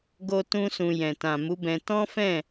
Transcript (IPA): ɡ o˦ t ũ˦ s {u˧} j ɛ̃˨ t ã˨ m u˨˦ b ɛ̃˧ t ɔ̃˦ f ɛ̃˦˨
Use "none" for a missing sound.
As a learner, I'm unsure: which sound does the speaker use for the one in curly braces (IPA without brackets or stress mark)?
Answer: ũ˧